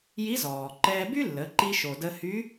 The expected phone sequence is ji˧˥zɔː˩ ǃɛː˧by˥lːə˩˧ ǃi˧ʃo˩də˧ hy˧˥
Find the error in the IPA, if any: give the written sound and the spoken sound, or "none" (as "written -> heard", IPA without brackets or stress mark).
none